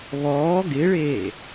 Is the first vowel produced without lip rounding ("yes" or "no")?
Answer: no